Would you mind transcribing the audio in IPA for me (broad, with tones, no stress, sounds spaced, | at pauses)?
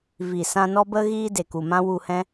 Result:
v i˨ s ã˧ n ɔ˦ b ə˦ ɣ iː˦ d e˨ k u˨ m ã˦ w u˧ h ɛ̃˦